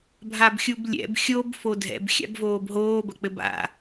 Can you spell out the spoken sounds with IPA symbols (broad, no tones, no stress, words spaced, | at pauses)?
bʱabxʲublʲɛ̰b xʲob fodʱɛ̰b xʲa̰bvoːbɦoː bɐk͡pɘba̰